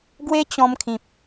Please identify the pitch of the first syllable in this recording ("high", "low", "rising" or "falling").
high